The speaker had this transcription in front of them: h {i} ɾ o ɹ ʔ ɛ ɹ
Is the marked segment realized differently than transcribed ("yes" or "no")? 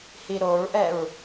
no